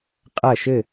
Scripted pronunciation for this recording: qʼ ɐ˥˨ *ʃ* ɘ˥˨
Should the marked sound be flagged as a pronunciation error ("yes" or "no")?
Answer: no